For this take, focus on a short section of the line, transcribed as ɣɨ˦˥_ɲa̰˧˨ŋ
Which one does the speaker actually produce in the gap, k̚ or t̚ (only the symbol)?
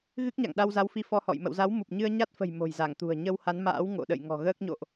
k̚